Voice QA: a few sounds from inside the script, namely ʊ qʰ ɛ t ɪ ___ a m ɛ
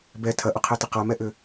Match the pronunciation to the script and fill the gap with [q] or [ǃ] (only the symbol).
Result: q